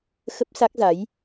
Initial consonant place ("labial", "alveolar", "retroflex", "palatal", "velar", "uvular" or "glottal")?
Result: velar